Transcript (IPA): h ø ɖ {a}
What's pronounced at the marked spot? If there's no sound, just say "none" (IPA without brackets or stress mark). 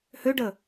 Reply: ə